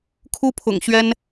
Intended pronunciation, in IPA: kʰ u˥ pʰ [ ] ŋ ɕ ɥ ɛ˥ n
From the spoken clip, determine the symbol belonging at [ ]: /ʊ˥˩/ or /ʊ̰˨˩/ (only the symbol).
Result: ʊ̰˨˩